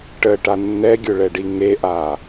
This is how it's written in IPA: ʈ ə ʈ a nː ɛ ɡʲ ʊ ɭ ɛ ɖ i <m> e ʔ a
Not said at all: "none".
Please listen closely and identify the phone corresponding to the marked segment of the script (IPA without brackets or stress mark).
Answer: ŋ